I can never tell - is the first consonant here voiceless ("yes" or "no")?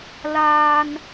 no